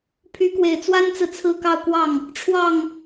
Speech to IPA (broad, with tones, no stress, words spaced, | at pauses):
pʰy˧˥kwe˨˩ɪ̯t͡swa˥nt͡sɹ̩˨ t͡sʰɹ̩˥˧kɑ˥˧ʊ̯kwɑ˥˩ŋ | ʈ͡ʂʰwɑ˥˩ŋ